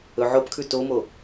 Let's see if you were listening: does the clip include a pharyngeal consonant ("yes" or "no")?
yes